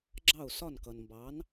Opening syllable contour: falling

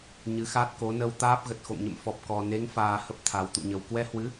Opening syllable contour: rising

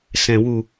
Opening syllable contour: low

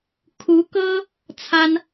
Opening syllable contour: rising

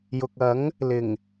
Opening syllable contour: low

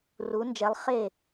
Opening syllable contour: rising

